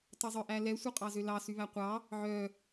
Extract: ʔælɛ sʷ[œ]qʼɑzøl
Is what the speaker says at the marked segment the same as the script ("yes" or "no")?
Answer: yes